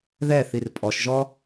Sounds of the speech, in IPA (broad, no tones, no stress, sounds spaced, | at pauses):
ð ɛ θ i r pʼ ɔ ʃ ʒ ɔ